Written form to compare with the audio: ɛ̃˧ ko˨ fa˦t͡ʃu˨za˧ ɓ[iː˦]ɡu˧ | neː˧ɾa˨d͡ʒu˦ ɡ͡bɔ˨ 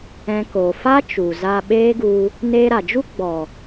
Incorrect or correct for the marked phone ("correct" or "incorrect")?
incorrect